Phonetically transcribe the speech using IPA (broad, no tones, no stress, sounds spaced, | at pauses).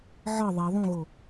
ʕ ɒ ðˤ e ðˤ ũ ɣ o